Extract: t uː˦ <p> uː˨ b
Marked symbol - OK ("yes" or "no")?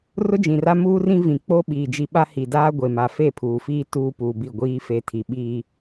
yes